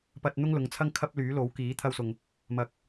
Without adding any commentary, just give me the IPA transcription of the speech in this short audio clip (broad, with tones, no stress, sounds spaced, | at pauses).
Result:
p ɐ˧ t̚ n̪ ʊ˥ ŋ l ʊ˨˧ ŋ t͡sʰ ɐ˥ ŋ kʰ ɐ˥ p̚ l yː˨˥ l o˨˥ w k iː˨˥ t̪ʰ ɐ˥ w s ʊ˧ ŋ | m ɐ˨˥ k̚